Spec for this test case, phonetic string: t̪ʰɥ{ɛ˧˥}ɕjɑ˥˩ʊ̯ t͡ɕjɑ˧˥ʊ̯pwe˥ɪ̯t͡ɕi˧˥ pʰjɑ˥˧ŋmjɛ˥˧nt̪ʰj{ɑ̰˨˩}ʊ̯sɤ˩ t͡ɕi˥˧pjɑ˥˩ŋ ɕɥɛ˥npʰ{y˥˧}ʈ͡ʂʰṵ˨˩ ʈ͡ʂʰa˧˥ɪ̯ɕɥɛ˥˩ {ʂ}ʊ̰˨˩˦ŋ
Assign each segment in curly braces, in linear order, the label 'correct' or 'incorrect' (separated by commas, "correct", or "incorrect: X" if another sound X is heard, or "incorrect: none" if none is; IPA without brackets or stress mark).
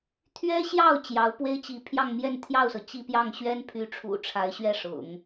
incorrect: ɛ˥, incorrect: ɑ˥˩, incorrect: y˧˥, correct